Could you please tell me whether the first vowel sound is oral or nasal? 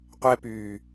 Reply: oral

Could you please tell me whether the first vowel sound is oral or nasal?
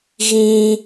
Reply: nasal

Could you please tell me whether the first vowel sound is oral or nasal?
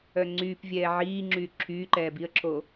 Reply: oral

